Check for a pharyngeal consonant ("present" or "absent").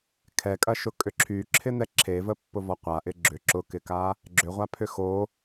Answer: absent